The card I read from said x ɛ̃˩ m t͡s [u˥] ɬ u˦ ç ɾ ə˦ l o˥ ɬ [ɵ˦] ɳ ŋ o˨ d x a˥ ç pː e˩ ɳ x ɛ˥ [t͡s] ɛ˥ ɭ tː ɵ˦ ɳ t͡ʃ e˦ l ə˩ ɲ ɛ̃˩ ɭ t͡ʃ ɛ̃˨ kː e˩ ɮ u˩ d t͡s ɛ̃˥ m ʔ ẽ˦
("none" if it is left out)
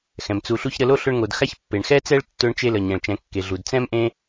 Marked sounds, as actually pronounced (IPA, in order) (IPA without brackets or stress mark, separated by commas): u˨, ɵ˦, t͡s